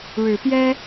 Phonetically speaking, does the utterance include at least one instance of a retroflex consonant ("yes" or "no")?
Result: yes